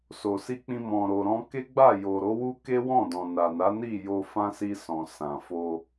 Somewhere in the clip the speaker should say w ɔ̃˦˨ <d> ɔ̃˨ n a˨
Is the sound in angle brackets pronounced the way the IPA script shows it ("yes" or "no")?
yes